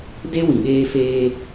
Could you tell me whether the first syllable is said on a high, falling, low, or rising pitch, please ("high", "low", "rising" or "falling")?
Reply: high